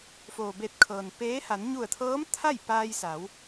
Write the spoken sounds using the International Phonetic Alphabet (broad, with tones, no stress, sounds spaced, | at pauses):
f oː˩ b e˧˩ t̚ kʰ ɤː˩ n p eː˧˥ h a˩˧ n ɲ u˧˩ ə̯ t̪ʰ ɤː˧˥ m t̪ʰ a˥˨ j p aː˧ j s a˩˧ w